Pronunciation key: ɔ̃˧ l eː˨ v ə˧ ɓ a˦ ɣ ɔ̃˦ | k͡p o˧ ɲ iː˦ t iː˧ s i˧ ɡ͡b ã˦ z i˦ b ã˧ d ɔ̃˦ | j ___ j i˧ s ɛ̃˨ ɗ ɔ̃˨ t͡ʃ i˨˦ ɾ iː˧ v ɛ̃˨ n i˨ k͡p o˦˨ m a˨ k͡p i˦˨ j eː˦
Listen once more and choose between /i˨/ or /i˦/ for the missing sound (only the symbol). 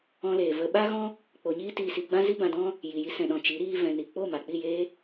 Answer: i˨